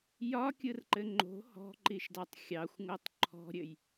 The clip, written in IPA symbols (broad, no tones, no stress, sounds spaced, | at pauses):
j ɒ kʲ ɯ r ǃ ɘ ŋ͡ǃ o̤ h ɔ̤ ǃ i ʃ d ɑ tˤ xʲ ɑ xʷ ŋ o tˤ ǃʰ ɔ̤ ɾʲ ɘ j